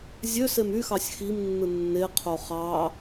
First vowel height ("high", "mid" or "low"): mid